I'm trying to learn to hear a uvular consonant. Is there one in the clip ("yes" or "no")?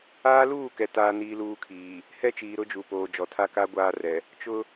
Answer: no